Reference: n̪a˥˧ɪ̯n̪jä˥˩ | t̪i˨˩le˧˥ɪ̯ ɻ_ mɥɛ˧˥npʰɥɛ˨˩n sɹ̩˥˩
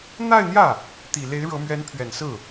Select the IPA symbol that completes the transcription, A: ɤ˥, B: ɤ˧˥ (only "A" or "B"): B